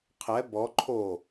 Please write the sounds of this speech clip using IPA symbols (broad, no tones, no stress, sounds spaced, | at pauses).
qʰ ɛ b ɔ ǃʰ o